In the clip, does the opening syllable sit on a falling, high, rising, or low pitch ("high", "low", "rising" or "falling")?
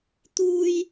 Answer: high